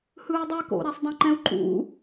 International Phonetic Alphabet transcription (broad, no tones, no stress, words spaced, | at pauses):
hɯːdˤɛ ko̰ ɾɛsˤdˤɛ̃ǃɛ̃u̯ǃʼṵ